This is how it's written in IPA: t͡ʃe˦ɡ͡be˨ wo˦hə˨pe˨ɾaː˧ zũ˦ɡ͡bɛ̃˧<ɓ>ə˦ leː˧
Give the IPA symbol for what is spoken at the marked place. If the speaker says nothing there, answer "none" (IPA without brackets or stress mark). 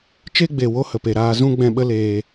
ɓ